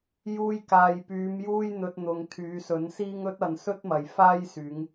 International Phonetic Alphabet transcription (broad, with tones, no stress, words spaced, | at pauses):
juː˧jkaː˨jpyː˨˧m juː˥jn̪ɵ˧t̚n̪ʊ˨ŋ t̪ʰyː˨˧sɵ˨˥nsiː˥ŋ ɵ˥t̚ ɐ˨n sɵ˥t̚mɐ˨jfaː˥jsyː˨˧ŋ